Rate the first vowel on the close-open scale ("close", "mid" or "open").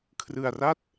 close